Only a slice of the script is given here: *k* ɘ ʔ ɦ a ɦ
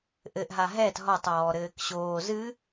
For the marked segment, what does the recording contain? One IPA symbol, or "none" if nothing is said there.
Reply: ʔ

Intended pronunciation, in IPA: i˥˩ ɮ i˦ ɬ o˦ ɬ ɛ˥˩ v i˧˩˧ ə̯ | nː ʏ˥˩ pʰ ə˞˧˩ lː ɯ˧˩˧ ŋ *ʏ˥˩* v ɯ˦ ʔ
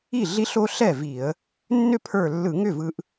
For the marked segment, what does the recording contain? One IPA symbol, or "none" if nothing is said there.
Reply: ʏ˥˩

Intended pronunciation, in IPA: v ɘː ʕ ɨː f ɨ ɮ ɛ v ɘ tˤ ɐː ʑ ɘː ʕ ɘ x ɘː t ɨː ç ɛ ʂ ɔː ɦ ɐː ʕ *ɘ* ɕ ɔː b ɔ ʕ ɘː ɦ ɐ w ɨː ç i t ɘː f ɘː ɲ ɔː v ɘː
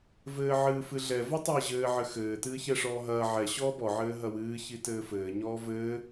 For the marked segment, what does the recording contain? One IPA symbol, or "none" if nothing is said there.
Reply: ɛ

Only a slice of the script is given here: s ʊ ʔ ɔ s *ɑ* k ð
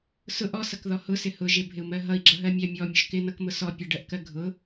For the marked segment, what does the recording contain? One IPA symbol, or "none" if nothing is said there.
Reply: ʌ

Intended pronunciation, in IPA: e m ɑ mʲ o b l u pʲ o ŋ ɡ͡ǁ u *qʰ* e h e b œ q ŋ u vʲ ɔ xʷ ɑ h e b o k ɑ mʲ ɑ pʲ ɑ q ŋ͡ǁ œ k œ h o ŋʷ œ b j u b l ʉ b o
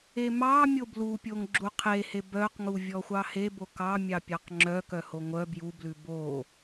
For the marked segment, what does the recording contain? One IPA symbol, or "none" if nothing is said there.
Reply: qʰ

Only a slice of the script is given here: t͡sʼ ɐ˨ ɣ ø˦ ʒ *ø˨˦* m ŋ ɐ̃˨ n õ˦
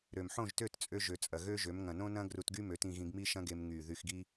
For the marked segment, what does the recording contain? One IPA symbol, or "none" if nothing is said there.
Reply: ø˨˦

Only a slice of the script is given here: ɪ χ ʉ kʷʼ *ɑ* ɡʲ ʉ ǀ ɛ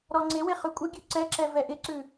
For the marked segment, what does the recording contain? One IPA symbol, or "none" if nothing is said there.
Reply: ə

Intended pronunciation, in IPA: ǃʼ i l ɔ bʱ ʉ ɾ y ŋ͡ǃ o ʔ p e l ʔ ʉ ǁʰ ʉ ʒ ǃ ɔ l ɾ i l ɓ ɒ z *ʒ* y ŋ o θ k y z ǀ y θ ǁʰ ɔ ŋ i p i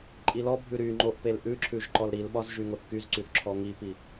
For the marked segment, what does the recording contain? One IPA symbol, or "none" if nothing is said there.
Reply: ʒ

